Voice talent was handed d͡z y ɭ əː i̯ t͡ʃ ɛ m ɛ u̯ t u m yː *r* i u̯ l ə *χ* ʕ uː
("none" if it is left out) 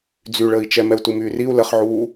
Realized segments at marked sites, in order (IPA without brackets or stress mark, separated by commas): r, χ